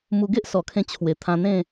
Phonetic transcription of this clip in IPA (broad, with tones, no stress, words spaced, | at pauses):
mu˧ ɡe˦ʔsɔ˨˩kʰẽ˧ t͡ɕʰwe˨˩t̪ʰã˧n̪ẽ˥˧